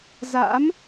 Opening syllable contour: rising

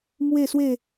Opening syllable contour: falling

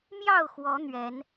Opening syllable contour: falling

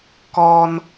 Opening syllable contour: high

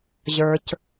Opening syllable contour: low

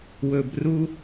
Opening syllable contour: low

